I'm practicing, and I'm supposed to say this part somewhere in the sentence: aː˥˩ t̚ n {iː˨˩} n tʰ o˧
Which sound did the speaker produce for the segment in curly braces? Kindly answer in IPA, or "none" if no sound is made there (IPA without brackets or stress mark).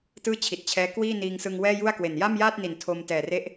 i˨˩